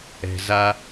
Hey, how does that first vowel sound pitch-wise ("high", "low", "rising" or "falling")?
low